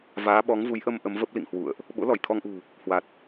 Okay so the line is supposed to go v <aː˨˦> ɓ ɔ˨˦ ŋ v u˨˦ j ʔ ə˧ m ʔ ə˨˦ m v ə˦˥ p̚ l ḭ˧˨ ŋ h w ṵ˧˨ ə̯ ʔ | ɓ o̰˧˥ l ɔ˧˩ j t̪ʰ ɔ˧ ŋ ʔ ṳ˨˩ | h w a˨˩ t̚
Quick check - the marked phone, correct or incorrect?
correct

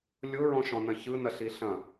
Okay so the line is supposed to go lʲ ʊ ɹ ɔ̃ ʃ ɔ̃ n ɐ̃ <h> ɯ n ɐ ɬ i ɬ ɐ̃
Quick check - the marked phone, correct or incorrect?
incorrect: ç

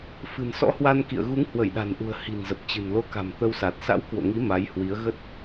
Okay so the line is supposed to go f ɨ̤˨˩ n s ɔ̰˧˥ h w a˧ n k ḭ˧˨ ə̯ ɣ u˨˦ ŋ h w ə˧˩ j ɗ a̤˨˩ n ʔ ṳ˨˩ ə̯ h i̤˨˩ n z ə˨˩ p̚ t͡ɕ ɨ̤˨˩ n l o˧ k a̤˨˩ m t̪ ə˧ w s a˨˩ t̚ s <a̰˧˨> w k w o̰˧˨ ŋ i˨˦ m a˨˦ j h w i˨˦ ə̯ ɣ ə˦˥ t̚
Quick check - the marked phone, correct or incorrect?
incorrect: a̰˧˥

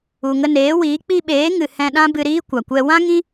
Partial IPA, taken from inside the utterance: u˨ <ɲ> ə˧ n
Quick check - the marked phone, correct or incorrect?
incorrect: ŋ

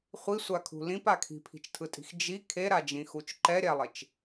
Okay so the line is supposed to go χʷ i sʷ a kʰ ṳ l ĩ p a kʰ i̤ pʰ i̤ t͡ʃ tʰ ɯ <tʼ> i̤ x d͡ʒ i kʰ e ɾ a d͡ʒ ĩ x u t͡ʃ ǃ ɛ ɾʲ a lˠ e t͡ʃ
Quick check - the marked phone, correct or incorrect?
correct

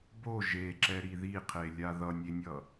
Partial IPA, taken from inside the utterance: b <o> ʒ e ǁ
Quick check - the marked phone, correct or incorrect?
correct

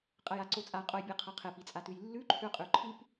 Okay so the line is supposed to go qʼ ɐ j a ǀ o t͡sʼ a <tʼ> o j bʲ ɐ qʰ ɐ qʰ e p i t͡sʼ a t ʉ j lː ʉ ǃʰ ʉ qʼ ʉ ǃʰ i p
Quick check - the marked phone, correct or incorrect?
incorrect: qʼ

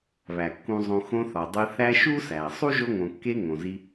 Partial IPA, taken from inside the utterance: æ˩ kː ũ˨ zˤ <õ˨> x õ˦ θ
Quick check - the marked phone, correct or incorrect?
correct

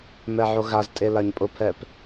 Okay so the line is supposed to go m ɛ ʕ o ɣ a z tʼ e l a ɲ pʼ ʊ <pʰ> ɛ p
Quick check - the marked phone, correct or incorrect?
correct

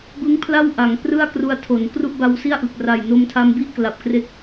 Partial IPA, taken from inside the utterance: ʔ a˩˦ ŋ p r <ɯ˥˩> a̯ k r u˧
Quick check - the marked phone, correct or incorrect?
correct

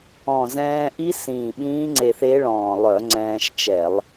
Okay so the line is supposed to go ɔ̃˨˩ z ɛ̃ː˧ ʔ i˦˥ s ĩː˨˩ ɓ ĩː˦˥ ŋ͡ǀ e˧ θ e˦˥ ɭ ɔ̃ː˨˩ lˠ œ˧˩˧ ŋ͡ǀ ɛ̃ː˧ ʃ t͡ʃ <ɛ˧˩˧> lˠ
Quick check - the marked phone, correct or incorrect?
correct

